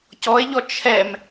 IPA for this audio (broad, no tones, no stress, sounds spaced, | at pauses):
c ɔ e̯ ʎ ɔ t͡ʃʰ ɛ m